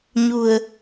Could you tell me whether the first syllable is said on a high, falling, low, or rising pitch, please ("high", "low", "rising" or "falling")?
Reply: low